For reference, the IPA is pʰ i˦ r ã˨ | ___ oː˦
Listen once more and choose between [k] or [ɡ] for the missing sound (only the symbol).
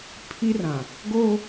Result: ɡ